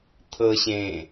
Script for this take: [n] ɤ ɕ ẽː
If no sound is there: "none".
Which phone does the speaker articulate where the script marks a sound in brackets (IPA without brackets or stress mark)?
t̪ʰ